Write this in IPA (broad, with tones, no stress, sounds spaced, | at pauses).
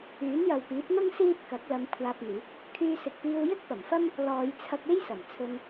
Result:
yː˨˥ n j ɐ˨ w p iː˨˥ p̚ n̪ ʊ˥ ŋ s iː˥ p̚ k ɐ˨˥ k̚ l ɐ˨˧ m kʷʰ aː˧ p̚ n̪ iː˨˥ k̚ | kʰ yː˧ s ɪ˨ k̚ p iː˧ w j ɪ˥ k̚ p ɐ˨˩ m f ɐ˥ m | l ɔː˨˧ j t͡sʰ ɐ˧ k̚ e˥ j s ɐ˨˩ m t͡sʰ ɵ˧ n